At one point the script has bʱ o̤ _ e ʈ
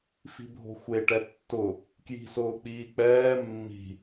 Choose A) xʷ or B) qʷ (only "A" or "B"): A